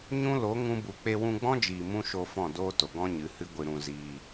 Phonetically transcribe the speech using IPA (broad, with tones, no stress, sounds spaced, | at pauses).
ɲ ũ˦ l o˨˦ ŋ ũ˦ b u˧ k͡p e˧ w ũ˧ ɡ͡b ɔ̃˦ d͡ʒ iː˨ m ũ˦ ʃ o˧ f ɔ̃˦˨ d oː˦ t o˨ ɡ ɔ̃˦ ɲ ɨ˨˦ h ɨ˦ ɡʷ ɨ˧ ɾ ũ˧ z iː˧